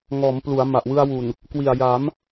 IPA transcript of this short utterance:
ŋɔː˩˦mplu˩˦a̯ ma˨˩ʔwɯ˧a̯wu˨˩n | kwi˨˩a̯ja˩˦m

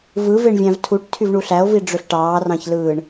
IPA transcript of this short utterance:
vɯveɳ vʲæ̃vtʰuʈ tʰyvɳuɬæo̯vi ɖ͡ʐøɬʈɑːrɑ̃çlɯːɳ

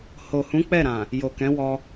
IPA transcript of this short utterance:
ho˨hũ˨˦ k͡pɛ˦˨ɾã˨ | jo˨kɛ̃˨˦wɔ˧

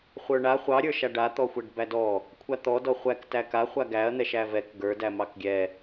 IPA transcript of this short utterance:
χʷə˞ɳa χʷɑɾʲə˞ʃa ɖa t̪ɔxʷæɖbædɔ | kʷʰat̪ɔdɔ χʷæk tæka χʷaɡæɐ̯n̪ɛʃ ævɛk ɡə˞dæ mɑkɡʲɛ

